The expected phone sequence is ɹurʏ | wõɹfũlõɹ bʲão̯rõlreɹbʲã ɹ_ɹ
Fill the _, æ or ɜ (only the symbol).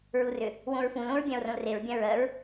ɜ